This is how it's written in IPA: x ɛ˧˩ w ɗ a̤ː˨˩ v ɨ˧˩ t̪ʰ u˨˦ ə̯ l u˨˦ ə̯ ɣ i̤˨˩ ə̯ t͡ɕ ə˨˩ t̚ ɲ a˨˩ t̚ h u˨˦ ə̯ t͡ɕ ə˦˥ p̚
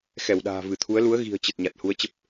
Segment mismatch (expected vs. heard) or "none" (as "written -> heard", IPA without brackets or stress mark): none